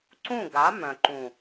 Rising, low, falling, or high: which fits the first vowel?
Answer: falling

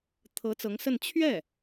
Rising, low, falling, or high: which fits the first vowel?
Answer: rising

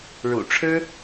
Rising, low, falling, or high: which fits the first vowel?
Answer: low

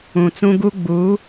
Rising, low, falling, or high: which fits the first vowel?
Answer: low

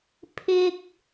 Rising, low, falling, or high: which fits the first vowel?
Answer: high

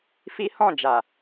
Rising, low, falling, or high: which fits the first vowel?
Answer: high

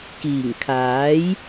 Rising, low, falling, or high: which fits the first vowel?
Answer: low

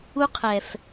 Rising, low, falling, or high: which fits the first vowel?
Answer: high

